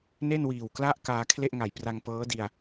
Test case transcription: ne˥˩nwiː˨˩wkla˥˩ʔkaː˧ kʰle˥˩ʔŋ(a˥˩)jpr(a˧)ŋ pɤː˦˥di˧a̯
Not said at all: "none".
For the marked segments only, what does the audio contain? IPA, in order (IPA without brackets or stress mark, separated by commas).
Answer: a˨˩, a˧